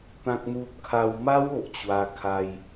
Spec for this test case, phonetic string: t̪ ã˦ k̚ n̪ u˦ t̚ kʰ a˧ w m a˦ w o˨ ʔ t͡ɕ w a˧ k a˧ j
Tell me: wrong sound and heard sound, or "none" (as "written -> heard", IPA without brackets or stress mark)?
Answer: k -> kʰ